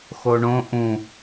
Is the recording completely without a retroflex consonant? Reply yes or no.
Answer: no